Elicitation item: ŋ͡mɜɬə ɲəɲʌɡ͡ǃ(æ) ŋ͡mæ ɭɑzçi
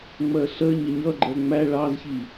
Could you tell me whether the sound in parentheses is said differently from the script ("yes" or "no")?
yes